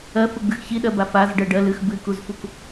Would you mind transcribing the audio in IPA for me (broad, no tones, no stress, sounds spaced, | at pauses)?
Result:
ɜ f ɯ ɡ͡b ɨ x ç i ɗ ɜ b a f a z ɖ ɜ ɖ ɜ l ɨ x b ɨ k u z f u k